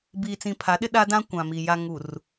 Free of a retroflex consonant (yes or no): yes